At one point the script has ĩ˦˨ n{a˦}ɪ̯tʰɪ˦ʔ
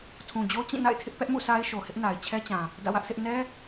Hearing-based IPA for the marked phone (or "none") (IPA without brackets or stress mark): a̰˦˨